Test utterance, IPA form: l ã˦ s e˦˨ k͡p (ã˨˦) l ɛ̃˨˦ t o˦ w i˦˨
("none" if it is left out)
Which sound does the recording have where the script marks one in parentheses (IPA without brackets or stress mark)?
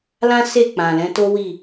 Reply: ã˨